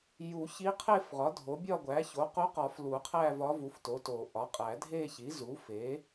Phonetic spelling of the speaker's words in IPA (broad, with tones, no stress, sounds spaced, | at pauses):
j u˨˩˦ ç i˧˥ qʰ e˥˧ f ʁ ɒ˩˥ dʱ o˩˥ bʲ ɒ˥˧ ɡʷ æ˩˥ ç o˩˥ q u˧˥ q ɒ˨˩˦ f l u˨˩˦ qʰ æ˥˧ v ɒ˧˥ v u˩˥ f t o˩˥ t o˨˩˦ ʔ ɒ˩˥ qʼ æ˨˩˦ dʱ e˥˧ ç i˩˥ z u˩˥ f e˩˥